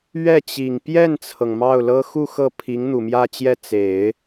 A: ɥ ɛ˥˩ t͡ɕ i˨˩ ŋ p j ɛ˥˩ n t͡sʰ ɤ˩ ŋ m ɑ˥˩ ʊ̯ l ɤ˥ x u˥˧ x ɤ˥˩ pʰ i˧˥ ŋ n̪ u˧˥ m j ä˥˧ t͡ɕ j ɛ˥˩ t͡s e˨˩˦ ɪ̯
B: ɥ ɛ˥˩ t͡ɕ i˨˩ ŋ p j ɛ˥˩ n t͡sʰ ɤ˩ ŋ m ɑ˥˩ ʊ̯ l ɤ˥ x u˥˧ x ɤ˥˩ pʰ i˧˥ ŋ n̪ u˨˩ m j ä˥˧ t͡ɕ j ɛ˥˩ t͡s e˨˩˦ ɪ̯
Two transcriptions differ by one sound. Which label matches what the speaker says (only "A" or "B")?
B